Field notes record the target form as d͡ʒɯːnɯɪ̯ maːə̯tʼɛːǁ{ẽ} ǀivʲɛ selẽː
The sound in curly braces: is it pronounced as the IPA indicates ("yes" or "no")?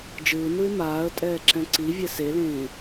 no